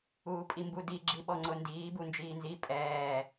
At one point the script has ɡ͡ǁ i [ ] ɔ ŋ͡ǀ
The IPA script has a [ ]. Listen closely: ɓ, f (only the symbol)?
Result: ɓ